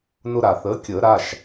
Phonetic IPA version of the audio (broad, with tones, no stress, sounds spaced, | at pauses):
n ʊ˧ ɾ a˩ θ əː˩˥ kʲ əː˨˩˦ ɾ a˩˧˩ ʃ